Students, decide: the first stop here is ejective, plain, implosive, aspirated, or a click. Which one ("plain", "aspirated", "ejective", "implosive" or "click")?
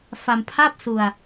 aspirated